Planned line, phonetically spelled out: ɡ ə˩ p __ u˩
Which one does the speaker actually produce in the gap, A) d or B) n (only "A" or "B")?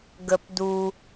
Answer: A